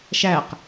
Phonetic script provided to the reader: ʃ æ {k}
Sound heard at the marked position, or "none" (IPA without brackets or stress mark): q